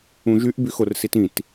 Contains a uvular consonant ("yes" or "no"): no